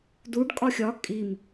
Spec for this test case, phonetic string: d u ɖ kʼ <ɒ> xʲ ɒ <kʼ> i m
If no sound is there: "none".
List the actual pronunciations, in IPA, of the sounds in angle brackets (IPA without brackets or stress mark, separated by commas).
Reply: ɒ, kʼ